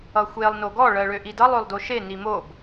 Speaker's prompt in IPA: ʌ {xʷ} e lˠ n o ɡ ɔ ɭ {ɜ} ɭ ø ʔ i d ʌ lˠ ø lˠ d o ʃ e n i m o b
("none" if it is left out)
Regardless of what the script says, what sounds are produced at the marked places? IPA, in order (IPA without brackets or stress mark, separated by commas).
xʷ, ɜ